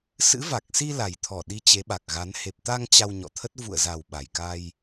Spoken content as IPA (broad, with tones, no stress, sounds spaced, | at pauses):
s ɨ̰˧˥ v a˨˩ k̚ s i˧ l a˨˩ j t̪ʰ ɔ˧˩ ɗ i˨˦ t͡ɕ e˨˦ ɓ a˨˩ k̚ ɣ a˨˦ n h e˨˩ p̚ t̪ a˧ ŋ t͡ɕ a˧ w ɲ ɔ̰˧˨ t̪ʰ ə˦˥ t̚ v ṵ˧˨ ə̯ z a˨˩ w ɓ a˨˩ j k a˧ j